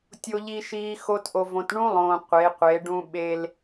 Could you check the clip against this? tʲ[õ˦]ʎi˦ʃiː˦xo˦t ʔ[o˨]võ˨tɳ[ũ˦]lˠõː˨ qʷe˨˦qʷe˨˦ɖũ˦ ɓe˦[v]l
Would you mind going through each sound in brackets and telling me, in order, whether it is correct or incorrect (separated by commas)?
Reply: incorrect, correct, correct, incorrect